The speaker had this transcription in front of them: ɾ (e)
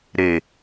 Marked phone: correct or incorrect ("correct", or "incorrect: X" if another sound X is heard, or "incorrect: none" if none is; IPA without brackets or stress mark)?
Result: correct